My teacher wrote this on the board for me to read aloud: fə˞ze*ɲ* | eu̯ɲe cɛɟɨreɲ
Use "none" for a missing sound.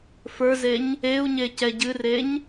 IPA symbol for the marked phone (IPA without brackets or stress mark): ɲ